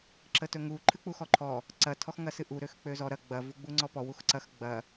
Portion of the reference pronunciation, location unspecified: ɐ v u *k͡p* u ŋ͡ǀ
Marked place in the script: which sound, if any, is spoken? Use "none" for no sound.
ɡ͡b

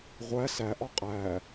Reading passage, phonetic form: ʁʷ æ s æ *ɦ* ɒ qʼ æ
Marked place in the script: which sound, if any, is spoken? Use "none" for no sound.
ʔ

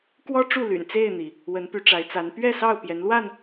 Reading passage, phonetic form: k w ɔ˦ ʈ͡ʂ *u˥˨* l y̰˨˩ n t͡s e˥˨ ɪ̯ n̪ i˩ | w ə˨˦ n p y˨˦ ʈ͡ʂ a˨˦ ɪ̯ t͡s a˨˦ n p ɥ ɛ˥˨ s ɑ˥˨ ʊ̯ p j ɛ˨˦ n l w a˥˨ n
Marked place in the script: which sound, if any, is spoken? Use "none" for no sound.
u˥˨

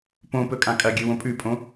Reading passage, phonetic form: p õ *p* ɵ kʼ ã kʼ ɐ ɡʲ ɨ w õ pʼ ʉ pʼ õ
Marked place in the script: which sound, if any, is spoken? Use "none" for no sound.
p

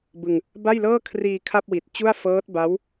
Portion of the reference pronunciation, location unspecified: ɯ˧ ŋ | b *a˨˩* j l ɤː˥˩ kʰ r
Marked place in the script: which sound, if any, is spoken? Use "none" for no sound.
a˥˩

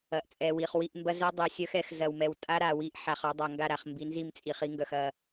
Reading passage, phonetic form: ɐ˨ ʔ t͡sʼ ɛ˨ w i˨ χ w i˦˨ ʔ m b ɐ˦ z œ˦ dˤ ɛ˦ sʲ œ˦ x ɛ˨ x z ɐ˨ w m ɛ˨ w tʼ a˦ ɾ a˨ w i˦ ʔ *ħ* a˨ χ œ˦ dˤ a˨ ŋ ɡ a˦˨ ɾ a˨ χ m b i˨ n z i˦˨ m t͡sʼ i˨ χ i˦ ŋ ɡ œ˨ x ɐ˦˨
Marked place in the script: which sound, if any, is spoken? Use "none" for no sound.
ħ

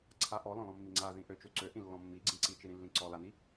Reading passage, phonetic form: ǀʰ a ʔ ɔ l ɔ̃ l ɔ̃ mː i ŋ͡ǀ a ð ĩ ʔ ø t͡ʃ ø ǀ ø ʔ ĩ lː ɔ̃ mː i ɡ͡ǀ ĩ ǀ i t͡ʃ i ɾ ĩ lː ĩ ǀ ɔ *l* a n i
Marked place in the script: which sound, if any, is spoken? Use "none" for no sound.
l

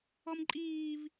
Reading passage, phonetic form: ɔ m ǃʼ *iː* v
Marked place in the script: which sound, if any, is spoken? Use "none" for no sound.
iː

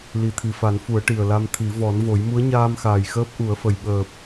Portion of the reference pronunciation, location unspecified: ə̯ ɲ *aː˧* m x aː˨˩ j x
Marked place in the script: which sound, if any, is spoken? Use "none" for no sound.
aː˧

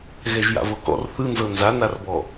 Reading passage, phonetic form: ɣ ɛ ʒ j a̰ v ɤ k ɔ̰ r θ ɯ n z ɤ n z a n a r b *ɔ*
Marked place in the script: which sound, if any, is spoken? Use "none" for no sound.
ɔ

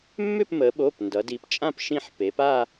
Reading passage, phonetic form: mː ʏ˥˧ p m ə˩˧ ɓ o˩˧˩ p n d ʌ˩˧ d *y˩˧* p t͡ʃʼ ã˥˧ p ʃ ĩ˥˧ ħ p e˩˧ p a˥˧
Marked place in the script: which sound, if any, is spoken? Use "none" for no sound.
i˩˧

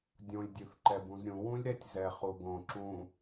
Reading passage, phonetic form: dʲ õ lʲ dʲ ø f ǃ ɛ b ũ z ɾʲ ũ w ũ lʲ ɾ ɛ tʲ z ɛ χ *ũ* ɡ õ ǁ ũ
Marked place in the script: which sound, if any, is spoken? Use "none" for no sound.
u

